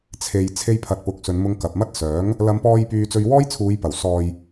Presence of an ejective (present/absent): absent